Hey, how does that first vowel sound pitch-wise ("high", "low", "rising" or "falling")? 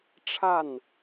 falling